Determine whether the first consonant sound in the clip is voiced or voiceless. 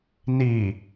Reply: voiced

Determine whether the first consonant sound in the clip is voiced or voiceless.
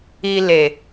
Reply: voiced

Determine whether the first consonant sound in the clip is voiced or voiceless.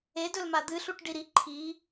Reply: voiced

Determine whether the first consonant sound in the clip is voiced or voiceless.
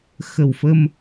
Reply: voiceless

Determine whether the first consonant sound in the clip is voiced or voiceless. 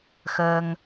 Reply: voiceless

